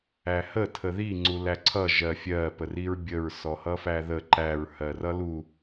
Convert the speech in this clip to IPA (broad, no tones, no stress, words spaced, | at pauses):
æhə tʰəði ŋ͡ǀulæǀʰʌ ʒɜfʲɜ pəriɹbʲəɹ sɔhʌfæðə ǃæɹ hɜrʌlu